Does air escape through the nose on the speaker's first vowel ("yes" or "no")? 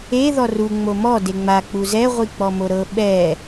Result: no